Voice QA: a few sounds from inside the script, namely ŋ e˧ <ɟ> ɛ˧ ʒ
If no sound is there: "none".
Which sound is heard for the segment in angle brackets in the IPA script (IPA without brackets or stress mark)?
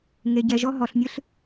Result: ɟ